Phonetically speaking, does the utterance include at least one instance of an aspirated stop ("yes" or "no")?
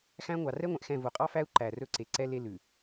no